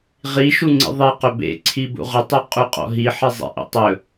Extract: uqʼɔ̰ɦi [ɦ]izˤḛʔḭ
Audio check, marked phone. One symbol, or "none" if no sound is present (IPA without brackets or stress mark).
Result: ħ